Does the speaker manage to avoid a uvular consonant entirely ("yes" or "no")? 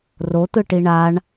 yes